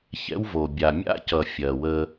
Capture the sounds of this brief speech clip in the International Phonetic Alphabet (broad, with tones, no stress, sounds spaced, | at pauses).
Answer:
ç ɛ̰˦ w v o˨ bʲ a˨ mʲ a̰˦ c ʌ˨ fʲ ɜ˨ w ə˦